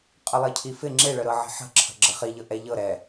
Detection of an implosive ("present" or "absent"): absent